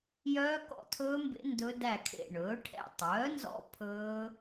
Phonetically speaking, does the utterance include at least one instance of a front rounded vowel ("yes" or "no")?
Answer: yes